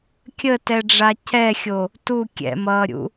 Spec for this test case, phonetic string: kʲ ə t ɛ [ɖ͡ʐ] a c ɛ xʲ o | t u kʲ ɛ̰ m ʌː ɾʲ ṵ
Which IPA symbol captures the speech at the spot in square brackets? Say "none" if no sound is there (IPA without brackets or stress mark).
ɖ͡ʐ